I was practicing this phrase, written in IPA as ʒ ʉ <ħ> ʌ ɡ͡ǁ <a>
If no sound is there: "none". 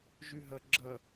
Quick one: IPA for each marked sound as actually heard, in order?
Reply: ɦ, ʌ

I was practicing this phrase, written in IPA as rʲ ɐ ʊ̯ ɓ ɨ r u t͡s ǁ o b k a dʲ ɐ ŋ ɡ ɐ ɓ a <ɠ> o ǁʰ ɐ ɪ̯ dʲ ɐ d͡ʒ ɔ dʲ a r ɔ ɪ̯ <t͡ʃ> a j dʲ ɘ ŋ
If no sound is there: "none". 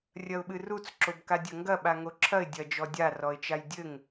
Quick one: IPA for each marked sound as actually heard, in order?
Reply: ŋ, t͡ʃ

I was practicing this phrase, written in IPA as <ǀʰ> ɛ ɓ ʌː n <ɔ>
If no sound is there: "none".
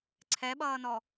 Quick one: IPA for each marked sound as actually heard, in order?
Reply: ǀʰ, ɔ

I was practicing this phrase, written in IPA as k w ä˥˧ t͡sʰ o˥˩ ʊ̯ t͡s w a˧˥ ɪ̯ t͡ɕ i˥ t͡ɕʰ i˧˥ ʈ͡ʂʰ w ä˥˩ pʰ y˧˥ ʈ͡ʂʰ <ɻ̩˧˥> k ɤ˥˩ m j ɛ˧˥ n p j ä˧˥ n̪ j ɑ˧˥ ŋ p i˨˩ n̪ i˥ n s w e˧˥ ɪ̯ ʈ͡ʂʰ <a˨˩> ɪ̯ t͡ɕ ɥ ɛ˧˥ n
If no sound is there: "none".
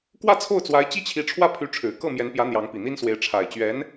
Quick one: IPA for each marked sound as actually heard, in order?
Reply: ɻ̩˨˩, a˨˩

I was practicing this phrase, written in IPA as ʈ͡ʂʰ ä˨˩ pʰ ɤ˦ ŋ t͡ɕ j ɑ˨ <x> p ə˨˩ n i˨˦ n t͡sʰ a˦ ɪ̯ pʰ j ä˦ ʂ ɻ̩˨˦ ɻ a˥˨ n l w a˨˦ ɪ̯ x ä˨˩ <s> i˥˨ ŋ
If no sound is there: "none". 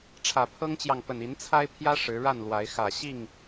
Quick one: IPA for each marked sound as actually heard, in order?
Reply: ŋ, ɕ

